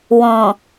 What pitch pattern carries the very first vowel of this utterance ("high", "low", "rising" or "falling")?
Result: low